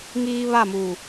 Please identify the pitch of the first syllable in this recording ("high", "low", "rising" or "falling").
high